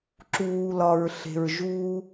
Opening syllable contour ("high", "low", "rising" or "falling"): low